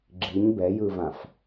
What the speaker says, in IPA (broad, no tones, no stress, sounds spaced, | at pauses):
ɡ͡ǁ i ɲ b ɛ j ɯ v ã f